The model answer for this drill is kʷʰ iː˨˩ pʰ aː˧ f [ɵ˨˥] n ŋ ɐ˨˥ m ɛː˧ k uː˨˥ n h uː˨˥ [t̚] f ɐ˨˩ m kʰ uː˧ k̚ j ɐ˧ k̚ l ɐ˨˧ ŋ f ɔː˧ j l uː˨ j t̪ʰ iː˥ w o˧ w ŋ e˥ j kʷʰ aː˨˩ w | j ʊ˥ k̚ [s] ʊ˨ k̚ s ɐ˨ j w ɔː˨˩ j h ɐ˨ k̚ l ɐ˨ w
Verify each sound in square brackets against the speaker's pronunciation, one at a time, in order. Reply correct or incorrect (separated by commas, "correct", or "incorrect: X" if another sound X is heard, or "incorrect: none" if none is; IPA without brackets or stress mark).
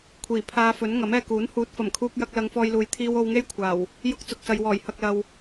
correct, correct, incorrect: t͡s